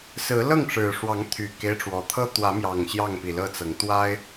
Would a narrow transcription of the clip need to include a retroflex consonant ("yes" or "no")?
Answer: yes